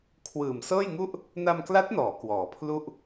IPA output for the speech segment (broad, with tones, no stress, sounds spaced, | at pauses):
kʰ w ɯː˨˩ m s ɤː˥˩ j ŋ u˥˩ ʔ | n a˧ m k l a˦˥ t̚ n ɔː˩˦ k w ɔː˩˦ pʰ l u˥˩ ʔ